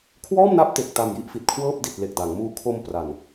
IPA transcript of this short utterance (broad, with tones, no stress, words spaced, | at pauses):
kʰwɔː˥˩mna˦˥p̚te˨˩k̚ ta˨˩m ji˦˥ʔfi˨˩t̚kʰwɤː˥˩p̚ di˨˩t̚le˨˩k̚ da˩˦ŋmuː˦˥ kʰo˧m pra˨˩n